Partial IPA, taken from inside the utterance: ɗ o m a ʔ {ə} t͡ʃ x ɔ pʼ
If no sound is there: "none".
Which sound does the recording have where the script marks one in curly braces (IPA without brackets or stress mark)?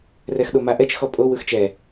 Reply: ɛ